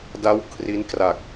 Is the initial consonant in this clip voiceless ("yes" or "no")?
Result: no